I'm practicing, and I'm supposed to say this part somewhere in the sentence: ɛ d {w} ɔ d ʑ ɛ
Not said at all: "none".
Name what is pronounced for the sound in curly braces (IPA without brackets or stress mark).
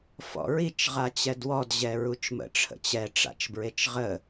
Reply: w